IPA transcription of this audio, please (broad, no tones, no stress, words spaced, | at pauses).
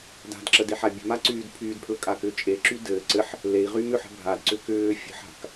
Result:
da̤dǁədeħa bʲə̤maǀyːd pʰyːdpʰlə̤kʼakʏː t͡ʃʼeǁy dɘː ǀɘħ | lei̯ʁym ʏħə̤ bʱadǀʏ kʏː fʲə̤ħa̤k